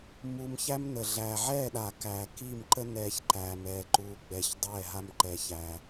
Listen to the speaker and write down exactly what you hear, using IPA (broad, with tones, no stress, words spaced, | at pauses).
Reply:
mu˧m çæ˦mnə˨ ɮæː˨ʕɛː˦˨ɗa˨ kæː˨ki˦˨mǃə˦ nɛː˧ç ǃæː˨m ɛː˨ǃuː˨ɡ͡bɛ˨ç dˤɛː˦˨ɦa˦mǃɛ˧çæ˧